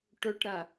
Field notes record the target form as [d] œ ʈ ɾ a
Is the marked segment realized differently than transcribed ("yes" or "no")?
yes